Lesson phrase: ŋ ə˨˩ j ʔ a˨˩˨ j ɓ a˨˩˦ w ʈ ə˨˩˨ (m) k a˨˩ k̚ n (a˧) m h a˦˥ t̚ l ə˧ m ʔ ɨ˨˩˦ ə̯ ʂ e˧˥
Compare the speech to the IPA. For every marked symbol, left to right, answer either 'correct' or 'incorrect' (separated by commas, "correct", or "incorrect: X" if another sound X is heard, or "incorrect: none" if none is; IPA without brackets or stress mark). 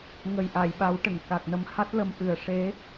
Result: incorrect: ŋ, incorrect: ə˧